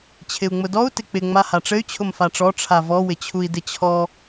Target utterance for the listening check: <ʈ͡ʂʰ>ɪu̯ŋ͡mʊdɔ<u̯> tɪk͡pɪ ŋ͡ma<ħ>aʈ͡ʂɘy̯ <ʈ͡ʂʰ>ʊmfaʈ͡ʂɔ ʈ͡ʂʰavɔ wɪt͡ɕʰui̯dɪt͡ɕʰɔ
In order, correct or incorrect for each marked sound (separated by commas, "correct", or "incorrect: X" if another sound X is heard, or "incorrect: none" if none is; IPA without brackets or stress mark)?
incorrect: t͡ɕʰ, correct, incorrect: h, incorrect: t͡ɕʰ